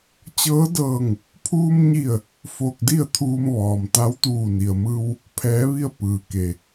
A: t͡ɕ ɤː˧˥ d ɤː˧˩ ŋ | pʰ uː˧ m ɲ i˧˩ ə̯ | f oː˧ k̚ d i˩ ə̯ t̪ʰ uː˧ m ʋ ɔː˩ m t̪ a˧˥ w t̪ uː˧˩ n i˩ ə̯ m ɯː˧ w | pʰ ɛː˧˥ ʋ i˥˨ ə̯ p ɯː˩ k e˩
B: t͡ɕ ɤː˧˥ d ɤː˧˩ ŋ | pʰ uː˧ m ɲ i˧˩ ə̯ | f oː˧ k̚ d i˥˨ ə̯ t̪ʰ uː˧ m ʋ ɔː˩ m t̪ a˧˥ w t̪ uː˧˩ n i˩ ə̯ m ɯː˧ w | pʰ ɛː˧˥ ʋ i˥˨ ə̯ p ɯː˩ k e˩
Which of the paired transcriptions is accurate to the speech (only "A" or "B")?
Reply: B